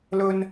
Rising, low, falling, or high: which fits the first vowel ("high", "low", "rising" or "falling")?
high